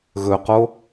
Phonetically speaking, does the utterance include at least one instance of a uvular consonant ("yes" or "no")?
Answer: yes